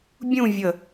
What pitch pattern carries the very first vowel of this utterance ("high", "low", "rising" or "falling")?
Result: falling